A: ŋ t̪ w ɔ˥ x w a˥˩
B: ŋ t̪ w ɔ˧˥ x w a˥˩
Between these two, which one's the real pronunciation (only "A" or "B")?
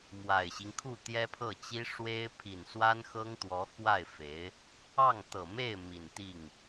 B